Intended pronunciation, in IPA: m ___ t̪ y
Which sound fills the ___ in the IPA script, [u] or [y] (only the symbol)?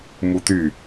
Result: u